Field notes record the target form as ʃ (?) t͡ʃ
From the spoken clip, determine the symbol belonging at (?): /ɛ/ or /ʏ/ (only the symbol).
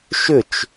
ʏ